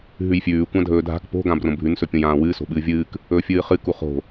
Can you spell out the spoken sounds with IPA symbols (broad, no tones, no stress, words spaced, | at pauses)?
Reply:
ɦʉjfʲʉː kʷãdʱɵːdʱa̤k po̤ ɡãbrõbʱʉn sɵpʲõjãːwɨː so̤ɓɨːvʲɨːk | ɵːfʲɨːχɨ kuχo̤